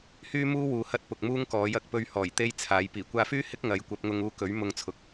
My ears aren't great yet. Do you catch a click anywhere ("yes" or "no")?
no